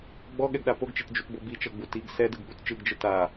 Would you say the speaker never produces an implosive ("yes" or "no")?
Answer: no